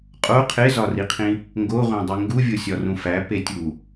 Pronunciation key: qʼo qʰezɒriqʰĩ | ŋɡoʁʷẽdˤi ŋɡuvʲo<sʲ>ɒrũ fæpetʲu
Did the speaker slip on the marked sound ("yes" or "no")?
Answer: no